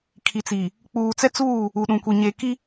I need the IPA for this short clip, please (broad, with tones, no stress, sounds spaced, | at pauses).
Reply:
kʰ i˨ t͡s i˨ | k͡p uː˨ t͡s ɛ˦ t͡s uː˦˨ | u˨ ɗ ũ˨ kʷ i˨ ɲ e˨ k i˦